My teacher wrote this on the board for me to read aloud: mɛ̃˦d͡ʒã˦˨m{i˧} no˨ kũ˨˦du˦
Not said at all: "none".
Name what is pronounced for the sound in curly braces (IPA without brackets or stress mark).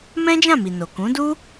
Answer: i˨